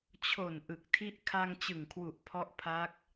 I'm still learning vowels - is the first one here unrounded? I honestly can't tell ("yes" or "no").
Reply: no